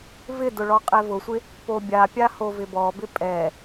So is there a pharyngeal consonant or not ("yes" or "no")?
no